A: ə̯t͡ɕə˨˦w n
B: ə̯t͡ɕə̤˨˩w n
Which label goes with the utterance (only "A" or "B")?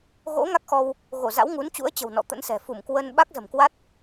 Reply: B